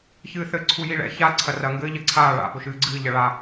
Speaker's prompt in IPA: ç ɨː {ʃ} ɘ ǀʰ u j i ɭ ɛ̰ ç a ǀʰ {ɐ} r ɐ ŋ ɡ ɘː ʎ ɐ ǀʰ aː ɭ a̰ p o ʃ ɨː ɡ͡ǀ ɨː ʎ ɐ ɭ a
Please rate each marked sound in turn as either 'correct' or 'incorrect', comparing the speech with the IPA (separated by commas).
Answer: incorrect, correct